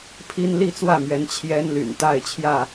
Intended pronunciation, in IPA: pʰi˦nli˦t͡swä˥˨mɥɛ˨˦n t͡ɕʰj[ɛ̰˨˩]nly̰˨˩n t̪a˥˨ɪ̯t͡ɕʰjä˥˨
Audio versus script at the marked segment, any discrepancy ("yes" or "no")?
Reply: yes